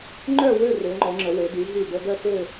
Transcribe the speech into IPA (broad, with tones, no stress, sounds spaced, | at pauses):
ŋ͡ǃ œ˥˧ w ø˥˧ r ø˩˧ ŋ͡ǃ ɔ˩˧ ŋ͡ǁ ə˩˧ w e˩˧ d y˩˧ ɦ y˧˩ b ə˧ ɡ œ˥˧ f ø˥˧